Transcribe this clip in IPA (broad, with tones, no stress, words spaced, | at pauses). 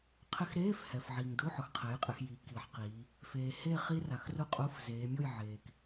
qʰɪ˧˥˧xɾeː˧˥˧f hɛ˩fʕi˩ŋdu˧˥˧ħʊ˩x qʰɛ˩˥jqʼɪ˩˧x ji˩˥ ki˩˧ħqiː˩˧ | feː˩he˥˨ χi˦˥ra˩xru˦˥qʼu˧˥˧f zeː˩˧mʲo˥˨j ʕeː˩k